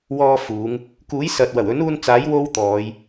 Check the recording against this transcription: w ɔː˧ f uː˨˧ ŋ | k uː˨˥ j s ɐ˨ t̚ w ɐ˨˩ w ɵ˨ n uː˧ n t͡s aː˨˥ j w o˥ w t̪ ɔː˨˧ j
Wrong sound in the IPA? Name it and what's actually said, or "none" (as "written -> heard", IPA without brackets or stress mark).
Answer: ɵ˨ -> ɵ˨˥